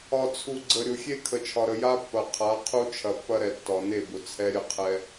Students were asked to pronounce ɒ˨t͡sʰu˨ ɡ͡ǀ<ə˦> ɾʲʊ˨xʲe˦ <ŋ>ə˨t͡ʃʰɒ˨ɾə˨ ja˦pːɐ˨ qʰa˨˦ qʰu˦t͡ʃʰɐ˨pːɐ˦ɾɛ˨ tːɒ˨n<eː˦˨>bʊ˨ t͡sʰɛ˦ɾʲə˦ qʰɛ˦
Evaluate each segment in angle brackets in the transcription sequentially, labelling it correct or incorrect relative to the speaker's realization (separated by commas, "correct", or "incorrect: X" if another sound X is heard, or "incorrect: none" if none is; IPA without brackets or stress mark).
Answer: incorrect: ə˨, incorrect: kʰ, incorrect: e˦˨